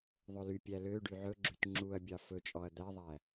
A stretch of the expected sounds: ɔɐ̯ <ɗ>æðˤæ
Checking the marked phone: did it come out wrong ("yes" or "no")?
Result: yes